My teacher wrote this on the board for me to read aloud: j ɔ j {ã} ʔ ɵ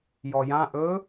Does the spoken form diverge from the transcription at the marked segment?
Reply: no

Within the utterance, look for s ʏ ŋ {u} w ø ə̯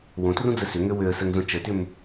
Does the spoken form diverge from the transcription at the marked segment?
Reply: yes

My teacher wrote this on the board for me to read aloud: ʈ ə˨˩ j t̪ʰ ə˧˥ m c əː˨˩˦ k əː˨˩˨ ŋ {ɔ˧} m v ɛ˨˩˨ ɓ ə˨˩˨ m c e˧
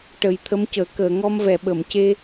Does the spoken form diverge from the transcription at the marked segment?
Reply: no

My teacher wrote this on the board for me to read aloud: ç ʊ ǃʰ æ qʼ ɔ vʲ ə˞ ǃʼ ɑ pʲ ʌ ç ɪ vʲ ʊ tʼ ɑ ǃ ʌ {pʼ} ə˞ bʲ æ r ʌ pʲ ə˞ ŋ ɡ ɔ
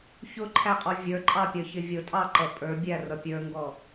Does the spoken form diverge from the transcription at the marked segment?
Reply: no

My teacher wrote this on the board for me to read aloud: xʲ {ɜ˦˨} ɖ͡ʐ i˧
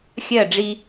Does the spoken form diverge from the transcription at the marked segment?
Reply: no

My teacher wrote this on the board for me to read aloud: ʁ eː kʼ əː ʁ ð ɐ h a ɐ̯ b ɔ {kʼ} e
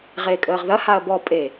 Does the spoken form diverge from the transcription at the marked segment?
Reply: yes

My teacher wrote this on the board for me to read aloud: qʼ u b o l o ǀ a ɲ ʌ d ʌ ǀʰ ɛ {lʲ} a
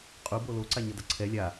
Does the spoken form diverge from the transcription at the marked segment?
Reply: no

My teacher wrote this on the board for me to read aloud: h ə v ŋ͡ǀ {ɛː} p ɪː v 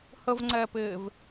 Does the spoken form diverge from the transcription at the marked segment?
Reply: no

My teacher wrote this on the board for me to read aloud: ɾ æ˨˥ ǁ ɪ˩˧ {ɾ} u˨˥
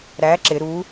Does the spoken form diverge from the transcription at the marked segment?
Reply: no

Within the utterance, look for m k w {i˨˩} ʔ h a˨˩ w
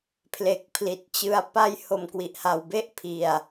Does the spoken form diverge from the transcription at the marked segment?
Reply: no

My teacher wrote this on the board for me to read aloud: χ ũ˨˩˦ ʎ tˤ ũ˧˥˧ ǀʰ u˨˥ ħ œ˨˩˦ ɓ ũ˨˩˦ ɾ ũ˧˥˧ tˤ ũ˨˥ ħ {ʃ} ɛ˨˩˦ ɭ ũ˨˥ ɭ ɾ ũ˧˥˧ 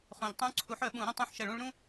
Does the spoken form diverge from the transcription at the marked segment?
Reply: no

